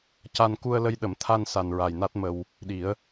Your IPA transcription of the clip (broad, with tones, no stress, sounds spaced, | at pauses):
c a˧ n k u˧ ə̯ l ə˧ j ɗ ə˨˩˦ m t̪ʰ a˧ n s a˨˩ n ɹ a˨˩ j n a˦˥ t̚ m ə˧ w | ɗ i˨˩˦ ə̯